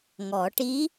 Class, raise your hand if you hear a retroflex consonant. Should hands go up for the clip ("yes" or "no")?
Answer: yes